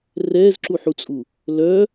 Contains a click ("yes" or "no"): yes